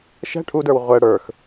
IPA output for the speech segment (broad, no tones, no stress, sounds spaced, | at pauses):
ʃ ɛ̤ ʈʰ u d ə˞ w ʁʷ ɛ ɽ ə˞ x